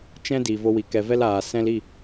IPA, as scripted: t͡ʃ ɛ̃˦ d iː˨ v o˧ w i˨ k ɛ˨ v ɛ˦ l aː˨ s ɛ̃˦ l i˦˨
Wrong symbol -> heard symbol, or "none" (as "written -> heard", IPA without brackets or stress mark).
none